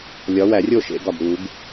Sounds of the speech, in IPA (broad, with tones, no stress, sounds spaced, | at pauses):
lʲ ɒ˨˥ w æ˨˩˦ rʲ o˥˨ ʃ ḛ˨˩˦ ɡ ɒ˨ b ɾ u˨˩˦ ɡ